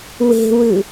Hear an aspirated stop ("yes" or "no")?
no